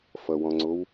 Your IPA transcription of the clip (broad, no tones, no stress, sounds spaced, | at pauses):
f ʌ w ɔ̃ ŋ͡ǀ o w